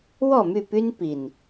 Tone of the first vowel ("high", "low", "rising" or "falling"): falling